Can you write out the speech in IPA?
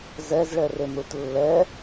z ɛ z ɭ ɛ r e m ɾ u t lː ɛ

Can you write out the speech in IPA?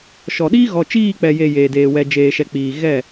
ʃ ɔ˨ ɗ iː˦ ɣ ɔ˨ t͡ʃ iː˦˨ k͡p ɛ˨ j e˨ j eː˨ d eː˨ w ɛ˨ d͡ʒ eː˨ ʃ ɛ˨ k͡p iː˨ ɣ ɛ˦˨

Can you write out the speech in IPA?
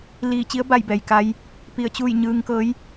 l iː˧˩ t͡ɕ i˧˥ ə̯ b a˧˩ j b ɛː˩ j k a˧ j | p i˧˩ ə̯ t͡ɕ uː˥˨ j ɲ ɯː˧ ŋ k ɤː˧˥ j

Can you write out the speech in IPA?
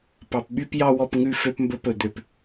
p ɑ˨ p ɓ y˧ p j ɑ˧ w ɔ˧ p ŋ ʉ˧ f ø˧ p m b ɵ˧ p ɵ˨ d̪ ø˨ p

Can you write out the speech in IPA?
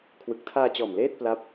kʰ w ɯ˨˩ k̚ tʰ aː˧ t͡ɕ ɔː˨˩ m l eː˥˩ t̚ p l a˦˥ p̚

